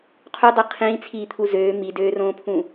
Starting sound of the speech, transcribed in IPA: qʰ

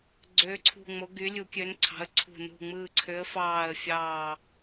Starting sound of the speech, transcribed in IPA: ɡ͡ǀ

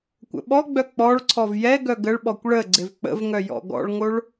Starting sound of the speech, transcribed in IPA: kʷ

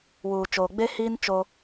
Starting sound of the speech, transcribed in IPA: w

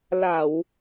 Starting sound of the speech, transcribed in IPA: l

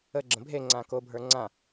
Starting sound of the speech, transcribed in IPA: ə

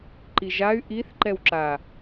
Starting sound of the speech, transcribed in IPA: ǃ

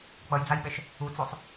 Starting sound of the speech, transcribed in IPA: k͡p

